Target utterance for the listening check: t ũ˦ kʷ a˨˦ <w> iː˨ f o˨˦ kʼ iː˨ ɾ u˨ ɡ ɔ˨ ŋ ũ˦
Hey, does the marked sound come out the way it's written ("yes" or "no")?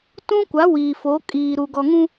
yes